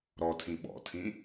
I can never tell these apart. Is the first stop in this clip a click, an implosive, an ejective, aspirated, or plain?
aspirated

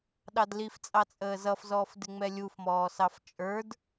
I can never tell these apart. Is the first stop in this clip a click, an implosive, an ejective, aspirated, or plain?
implosive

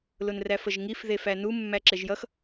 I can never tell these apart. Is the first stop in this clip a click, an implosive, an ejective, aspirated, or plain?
click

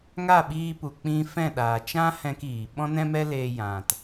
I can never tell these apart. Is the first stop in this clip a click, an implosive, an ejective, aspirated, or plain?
implosive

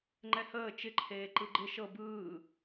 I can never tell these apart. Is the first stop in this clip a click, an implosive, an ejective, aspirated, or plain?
click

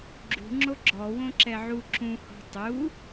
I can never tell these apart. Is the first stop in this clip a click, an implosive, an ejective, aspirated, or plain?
click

